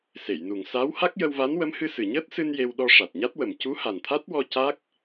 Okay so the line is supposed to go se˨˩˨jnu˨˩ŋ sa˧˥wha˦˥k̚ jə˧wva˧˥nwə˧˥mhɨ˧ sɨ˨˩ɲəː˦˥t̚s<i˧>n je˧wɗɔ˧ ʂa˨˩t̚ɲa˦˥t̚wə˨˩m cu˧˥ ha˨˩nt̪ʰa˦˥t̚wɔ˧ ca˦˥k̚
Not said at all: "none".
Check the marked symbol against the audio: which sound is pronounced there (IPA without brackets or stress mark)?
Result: ɨ˧